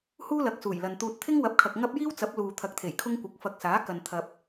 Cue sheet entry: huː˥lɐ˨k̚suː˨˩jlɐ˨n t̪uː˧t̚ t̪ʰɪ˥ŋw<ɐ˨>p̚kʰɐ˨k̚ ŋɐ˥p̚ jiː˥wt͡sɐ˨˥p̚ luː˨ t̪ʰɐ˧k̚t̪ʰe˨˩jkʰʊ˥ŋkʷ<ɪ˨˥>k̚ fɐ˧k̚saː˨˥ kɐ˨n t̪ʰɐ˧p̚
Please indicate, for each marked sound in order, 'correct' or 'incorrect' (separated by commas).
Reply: incorrect, correct